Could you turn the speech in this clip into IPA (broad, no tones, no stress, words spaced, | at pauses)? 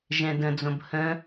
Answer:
ʒɛ̃də̃d͡zõb hə̃